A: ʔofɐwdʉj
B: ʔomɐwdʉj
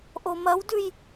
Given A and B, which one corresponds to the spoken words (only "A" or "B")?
B